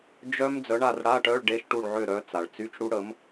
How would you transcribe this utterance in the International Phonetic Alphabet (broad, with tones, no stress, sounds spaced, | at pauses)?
d͡ʒ œ˦˥ m d͡z œ˨˥ ɳ a˥˨ r ɽ a˧˥˧ ʈ œ˧˥˧ ɭ ɖ e˧˥˧ ʃ ʈ u˥˨ ɭ ʕ ø˥˨ ɾ œ˨˥ t͡s a˩ ɭ t͡s y˧˥˧ t͡ʃ ɽ u˦˥ ɽ ə˨˥ m